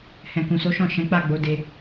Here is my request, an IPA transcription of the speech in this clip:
h ɛ̃˨ k ũ˨ s o˨˦ ʃ ɔ̃˦˨ ʃ ɛ̃˨˦ k͡p a˦˨ ɡ͡b o˨˦ d e˧

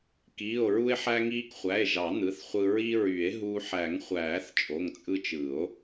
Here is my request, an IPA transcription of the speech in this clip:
k iː˩˧˩ o̯ ɹ u˧ e̯ ħ æ˧ ŋ iː˧ k χʷ æ˩˧˩ e̯ ʒ ɑ˨˩˦ n̪ ɯ˩˧˩ θ χʷ ɯ˧ ɹ i˧ ɹ y˨˩˦ e̯ ɦ u˧ ħ æ˨˩˦ ŋ χʷ æː˨˩˦ θ t͡ʃʼ o˩˧˩ ŋ t͡sʼ ɯ˧ t͡ʃ ɯ˨˩˦ o̯

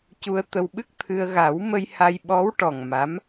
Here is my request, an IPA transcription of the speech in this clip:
c u˧ ə̯ t̪ ə˧ w ɓ ɨ˦˥ k̚ t̪ʰ ɨ˧ ə̯ ɣ a˨˩˦ w m ə˧ j h a˧ j ɓ ɔ˧˥ w ʈ ɔ˨˩ ŋ m a˧˥ m

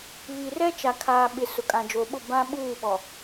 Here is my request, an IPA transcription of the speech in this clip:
β i˨ r ɛ˦ t͡ʃ a˨ kʰ aː˨ ɓ ɪ˨ s ʊ˨ kʼ ã˨ d͡ʒ o˨ ɓ ʊ˦˨ b ã˦ ɓ uː˦˨ ɓ ɔ˨

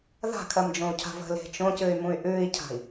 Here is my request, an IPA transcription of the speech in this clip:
ð a̤ kʰ ɜ m d͡ʒ õ u̯ cʰ a̤ v ə̤ l e̤ t͡ʃ õ c ɨ y̯ m ũ y̯ ʔ ʉː i̯ cʰ a̤ i̯

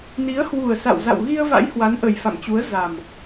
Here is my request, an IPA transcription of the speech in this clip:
n i˨˦ ə̯ h w u˨˩ ə̯ s a̰˧˨ w z a̰˧˨ w ɣ i˧ ə̯ v a̰˧˥ j h w a˨˦ n ʔ ə˨˩ j f a̰˧˨ m t͡ɕ u˨˦ ə̯ z a˨˩ m

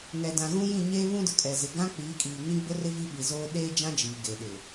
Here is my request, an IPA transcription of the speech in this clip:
ŋ ɛ˨ d ã˨ ɣ ũ˦ j ĩ˦˨ ɲ eː˦ β ũ˦ d ʊ˨ kʼ ɛ˨ z ɪ˨ ɡ ã˦ k͡p iː˨˦ kʼ iː˨ ŋ ĩ˦ ɡ͡b ʊ˦ r ɪ˦ v i˦ ɓ i˨ z oː˦ ɗ eː˦ d͡ʒ ã˦ d͡ʒ iː˨ ɡ eː˨ ɗ ɪ˨

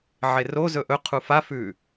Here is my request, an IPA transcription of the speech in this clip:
ʕ e r o z ɵ ʔ ɵ qʰ u f a f ʉ

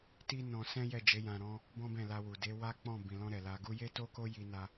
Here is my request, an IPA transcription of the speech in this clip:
t i˦ n ɔ̃˧ s ɛ̃˦ j ɛ˦˨ d͡ʒ e˨˦ j ã˧ ɾ ɔ̃˦ | b ɔ̃˦ b ɛ̃˦˨ l a˧ w u˨ d e˨˦ w a˦ k͡p ɔ̃˦˨ b ĩ˨ l ɔ̃˧ ɾ ɛ˨ l a˧ ɡ u˦ j e˦ t o˦ k o˦ j i˧ n a˧

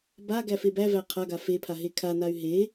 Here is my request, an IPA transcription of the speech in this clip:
b a ɡ æ f e b æ v æ qʰ a ɡ a f e pʰ a ɦ e kʰ a n a y̯ ɦ e

